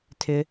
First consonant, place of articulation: alveolar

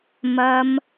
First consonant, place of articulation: labial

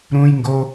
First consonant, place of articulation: alveolar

